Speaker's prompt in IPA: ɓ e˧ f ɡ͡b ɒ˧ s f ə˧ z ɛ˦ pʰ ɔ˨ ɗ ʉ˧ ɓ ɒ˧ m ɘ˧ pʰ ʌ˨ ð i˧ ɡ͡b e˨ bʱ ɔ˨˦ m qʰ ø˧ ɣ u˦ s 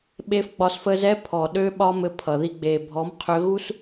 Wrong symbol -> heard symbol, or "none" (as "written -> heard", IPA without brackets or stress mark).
ʉ˧ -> ø˧